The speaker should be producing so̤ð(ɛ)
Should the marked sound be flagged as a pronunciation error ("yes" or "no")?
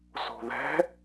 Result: yes